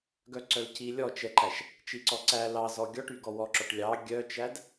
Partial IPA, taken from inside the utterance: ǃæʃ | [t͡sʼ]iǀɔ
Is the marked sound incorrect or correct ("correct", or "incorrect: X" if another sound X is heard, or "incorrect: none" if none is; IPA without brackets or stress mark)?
incorrect: t͡ʃ